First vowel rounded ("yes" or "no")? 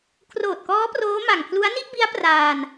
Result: yes